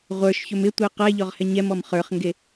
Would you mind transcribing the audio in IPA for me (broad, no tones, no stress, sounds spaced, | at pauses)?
ʁʷ ə˞ ʃ ç ɵ m ɪ tʷ e q ɛ ʎ ɔ ʁ h ɛ ɲ ɛ m ɔ m χ ə˞ χ ŋ ɡ e